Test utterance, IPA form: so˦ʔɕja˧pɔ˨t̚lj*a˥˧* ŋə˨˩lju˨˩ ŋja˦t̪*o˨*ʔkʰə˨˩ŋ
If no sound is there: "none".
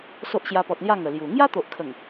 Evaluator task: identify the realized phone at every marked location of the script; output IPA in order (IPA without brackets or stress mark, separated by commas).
a˥˧, o˨